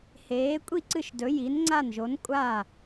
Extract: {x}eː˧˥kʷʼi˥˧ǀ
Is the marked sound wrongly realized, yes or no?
yes